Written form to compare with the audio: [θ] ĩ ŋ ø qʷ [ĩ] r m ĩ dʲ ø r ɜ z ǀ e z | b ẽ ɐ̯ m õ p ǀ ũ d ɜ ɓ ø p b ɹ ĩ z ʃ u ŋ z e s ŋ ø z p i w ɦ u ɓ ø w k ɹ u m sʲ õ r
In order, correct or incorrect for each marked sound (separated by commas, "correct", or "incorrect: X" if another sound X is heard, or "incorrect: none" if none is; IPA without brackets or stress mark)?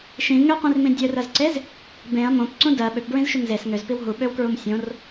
incorrect: ʃ, correct